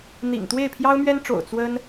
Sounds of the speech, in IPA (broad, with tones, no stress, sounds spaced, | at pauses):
n̪ ḭ˨˩ ŋ t̪ w e˥˩ ɪ̯ pʰ j ɑ˥ ʊ̯ m ɥ ɛ˥ n ʈ͡ʂ o̰˨˩ ʊ̯ t͡s w ə˥ n